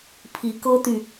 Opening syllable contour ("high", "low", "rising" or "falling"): rising